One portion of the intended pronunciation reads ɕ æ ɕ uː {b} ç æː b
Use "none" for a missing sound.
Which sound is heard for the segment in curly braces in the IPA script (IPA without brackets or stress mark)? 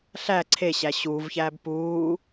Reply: v